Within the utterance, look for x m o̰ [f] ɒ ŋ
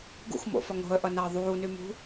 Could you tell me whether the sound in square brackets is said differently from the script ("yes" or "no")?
no